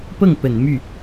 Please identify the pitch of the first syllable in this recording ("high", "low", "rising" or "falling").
falling